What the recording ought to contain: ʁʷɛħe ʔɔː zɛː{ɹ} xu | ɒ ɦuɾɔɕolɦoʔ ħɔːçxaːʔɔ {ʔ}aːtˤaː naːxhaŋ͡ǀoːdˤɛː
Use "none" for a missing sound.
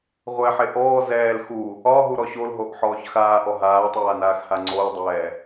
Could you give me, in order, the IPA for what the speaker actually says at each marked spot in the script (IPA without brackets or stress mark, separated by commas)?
l, ɦ